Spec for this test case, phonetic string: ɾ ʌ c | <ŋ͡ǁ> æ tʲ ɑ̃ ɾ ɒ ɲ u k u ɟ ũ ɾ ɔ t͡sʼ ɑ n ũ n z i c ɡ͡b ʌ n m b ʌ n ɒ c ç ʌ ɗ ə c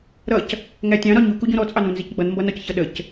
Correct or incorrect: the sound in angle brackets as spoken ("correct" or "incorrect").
incorrect